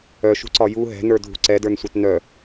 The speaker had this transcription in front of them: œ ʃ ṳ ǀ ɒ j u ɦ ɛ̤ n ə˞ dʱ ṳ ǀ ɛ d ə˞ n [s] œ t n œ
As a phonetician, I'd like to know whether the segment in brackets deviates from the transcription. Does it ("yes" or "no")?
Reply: yes